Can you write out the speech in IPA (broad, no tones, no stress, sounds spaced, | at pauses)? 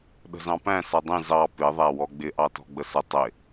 ɗ ə̤ z ɑ̃ p æ̃ s ʌ dˤ ĩ z ɑ p ɪ ðˤ æ w ɔ ɡ͡b ɪ ʔ ɑ t ɔ̤ ɡ͡b ə s ə tˤ ɪ